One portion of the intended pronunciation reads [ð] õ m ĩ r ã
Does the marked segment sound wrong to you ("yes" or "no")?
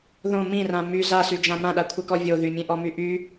no